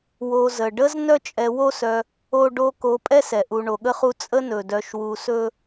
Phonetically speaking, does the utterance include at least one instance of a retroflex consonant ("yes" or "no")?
yes